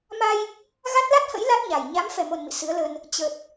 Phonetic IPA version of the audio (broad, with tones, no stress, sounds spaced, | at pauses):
m a˧ j | ɣ a˦˥ t̚ l a˦˥ t̚ h ə̰˧˥ j l a˦˥ t̚ ɲ a˨˩ j ɲ a˨˦ m f ɛ˨˩ m o˨˩ n m ḭ˧˨ s ɨ˨˦ ə̯ l ə˧ n | t͡ɕ ə˨˩ t̚